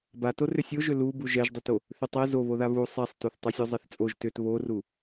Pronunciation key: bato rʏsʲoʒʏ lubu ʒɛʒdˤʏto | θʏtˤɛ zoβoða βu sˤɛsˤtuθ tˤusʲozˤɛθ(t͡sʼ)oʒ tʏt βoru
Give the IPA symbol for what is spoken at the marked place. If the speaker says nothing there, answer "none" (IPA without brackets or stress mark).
t͡sʼ